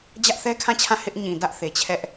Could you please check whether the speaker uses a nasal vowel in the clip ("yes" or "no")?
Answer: yes